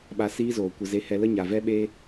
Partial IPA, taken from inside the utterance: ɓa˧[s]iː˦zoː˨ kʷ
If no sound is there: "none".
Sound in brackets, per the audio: s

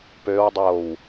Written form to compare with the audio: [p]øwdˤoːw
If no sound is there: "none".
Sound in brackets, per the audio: p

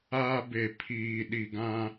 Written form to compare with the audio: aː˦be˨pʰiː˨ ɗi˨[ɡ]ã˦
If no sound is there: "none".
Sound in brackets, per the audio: ɡ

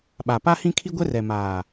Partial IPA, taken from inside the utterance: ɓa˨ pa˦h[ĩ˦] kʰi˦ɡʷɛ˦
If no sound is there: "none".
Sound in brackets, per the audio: ĩ˦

